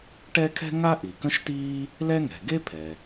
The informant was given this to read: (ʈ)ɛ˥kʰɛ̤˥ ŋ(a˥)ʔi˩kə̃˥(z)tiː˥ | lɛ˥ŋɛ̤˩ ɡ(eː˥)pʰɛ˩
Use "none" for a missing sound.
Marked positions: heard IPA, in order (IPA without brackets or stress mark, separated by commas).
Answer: ʈ, a˥, ʃ, e˥